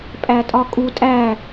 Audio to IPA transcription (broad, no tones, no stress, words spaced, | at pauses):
pʼætʼɒkʼu tʼæ